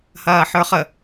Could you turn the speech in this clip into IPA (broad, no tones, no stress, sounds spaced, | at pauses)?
h ɐː ħ ə˞ χ ə